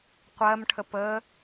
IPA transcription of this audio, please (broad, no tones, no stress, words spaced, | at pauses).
qʷɜmʈʰəp ə